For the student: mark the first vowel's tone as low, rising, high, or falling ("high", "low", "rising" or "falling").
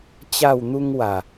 falling